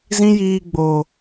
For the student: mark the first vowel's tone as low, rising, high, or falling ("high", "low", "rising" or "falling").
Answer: high